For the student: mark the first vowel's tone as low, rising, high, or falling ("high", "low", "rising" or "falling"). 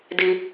high